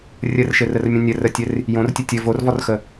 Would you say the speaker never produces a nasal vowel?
no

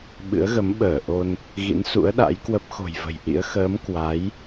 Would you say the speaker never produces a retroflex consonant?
yes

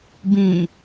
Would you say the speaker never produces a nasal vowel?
no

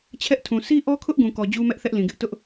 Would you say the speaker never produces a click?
yes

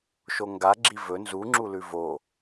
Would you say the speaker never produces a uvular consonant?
yes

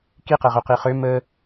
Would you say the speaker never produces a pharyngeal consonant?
yes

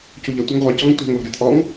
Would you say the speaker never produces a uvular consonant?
no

